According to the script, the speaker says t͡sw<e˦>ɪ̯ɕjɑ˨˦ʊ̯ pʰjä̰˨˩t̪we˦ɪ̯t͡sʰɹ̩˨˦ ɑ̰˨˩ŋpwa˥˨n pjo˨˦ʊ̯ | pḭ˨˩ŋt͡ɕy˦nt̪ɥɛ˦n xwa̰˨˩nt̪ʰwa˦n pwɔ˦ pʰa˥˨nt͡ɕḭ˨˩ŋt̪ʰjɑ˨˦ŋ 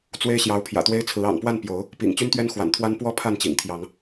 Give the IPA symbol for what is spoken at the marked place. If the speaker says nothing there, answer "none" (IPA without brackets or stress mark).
e˦